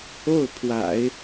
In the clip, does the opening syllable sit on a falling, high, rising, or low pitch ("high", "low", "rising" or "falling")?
falling